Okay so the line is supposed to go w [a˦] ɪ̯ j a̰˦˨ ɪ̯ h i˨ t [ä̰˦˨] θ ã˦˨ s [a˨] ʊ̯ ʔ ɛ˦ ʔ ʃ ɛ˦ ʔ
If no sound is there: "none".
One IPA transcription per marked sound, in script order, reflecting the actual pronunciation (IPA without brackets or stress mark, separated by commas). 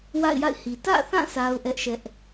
a̰˦˨, ä̰˦˨, a˦